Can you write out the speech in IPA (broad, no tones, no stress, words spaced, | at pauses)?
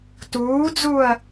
tuːd͡zuːɐ̯